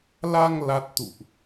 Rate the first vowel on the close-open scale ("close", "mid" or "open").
open